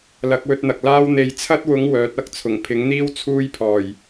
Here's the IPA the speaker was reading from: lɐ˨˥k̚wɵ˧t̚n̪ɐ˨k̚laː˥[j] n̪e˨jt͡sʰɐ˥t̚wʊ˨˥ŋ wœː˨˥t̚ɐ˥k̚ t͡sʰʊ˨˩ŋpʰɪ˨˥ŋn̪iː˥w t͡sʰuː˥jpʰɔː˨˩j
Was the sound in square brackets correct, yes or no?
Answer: no